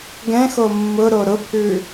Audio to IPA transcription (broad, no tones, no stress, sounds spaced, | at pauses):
ɡ ɛ̃ x o mː ʊ ɾ o ɾ ʊ pʰ ʉ